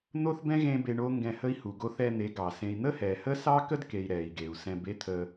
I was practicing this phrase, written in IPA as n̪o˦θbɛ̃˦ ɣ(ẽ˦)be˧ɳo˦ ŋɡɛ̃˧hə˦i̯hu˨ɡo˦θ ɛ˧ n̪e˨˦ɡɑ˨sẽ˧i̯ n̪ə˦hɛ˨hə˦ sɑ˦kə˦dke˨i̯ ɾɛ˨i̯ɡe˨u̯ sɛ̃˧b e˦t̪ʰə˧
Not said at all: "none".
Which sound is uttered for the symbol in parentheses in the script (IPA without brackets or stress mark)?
ẽ˦